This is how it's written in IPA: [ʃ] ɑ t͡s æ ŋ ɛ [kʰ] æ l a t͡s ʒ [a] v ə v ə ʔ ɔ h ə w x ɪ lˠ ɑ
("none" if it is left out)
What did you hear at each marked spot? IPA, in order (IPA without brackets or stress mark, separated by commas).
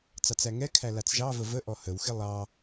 t͡s, kʰ, ɑ